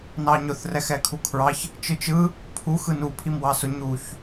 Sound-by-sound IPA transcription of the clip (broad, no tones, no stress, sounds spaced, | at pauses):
n ɑ ɲ ʊ θ r ɛ x ɛ kʰ u kʰ ɹ ɑ ç | t͡ʃ ɯ t͡ʃ ɯ | pʰ u x ɯ n u pʰ i m w ɑ s ʊ ɲ u ç